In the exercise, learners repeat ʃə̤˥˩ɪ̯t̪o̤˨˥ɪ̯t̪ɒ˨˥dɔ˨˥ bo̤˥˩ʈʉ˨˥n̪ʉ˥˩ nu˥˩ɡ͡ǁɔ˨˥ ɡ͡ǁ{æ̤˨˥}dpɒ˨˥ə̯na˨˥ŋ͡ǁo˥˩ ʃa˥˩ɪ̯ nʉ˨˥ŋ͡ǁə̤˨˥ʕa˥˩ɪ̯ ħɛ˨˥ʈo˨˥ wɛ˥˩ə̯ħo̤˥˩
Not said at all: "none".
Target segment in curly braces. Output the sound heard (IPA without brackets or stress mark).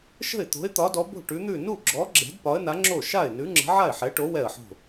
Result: ɛ̤˨˥